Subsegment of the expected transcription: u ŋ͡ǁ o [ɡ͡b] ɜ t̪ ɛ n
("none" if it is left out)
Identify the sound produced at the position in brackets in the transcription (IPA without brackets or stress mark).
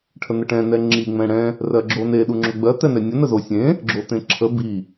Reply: ɡ͡b